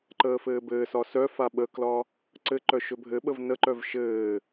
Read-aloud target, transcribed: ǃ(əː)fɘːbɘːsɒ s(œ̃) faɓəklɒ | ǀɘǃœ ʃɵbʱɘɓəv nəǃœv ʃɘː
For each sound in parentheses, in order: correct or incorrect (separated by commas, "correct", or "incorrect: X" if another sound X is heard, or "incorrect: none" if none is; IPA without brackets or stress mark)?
correct, incorrect: œ